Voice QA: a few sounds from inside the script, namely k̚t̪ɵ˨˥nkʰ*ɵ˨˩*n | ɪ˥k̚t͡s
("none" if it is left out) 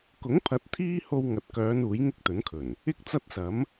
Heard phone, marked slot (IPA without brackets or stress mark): ɵ˨˩